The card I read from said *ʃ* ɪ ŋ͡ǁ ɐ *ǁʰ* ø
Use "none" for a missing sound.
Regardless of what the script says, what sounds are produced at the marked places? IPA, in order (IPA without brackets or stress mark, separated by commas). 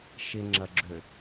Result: ʃ, ɡ͡ǁ